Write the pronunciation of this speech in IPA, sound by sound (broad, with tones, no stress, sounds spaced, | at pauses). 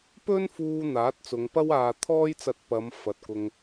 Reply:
p ɵ˧ n f uː˨ n̪ aː˨˥ t̚ t͡s ʊ˨˧ ŋ p ɐ˥ w aː˧ t̪ʰ ɔː˥ j t͡s ɐ˧ t̚ p ɐ˨˧ m f ɐ˨ t̚ k ʊ˧ ŋ